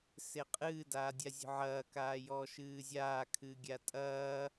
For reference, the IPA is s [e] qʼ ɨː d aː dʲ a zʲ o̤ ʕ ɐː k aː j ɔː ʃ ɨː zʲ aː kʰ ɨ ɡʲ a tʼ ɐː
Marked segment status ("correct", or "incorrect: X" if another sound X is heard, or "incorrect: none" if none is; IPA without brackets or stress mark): correct